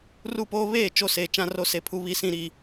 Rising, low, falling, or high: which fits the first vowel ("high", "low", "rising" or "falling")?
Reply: falling